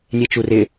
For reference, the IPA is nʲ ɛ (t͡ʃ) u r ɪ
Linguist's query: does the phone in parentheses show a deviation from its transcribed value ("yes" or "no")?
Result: no